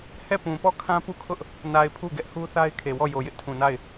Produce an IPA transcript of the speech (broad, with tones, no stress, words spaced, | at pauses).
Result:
hɛ˦˨ pũ˨pɔ˦˨ kʰã˦pu˦˨kʰʊ˦ʔ | na˨ɪ̯ pʰu˦˨ɡɛ˦ʔhu˦ θa˦ɪ̯kʰe˨wɔ˦˨jo˨ jɪ˦ʔtʰũ˨na˦˨ɪ̯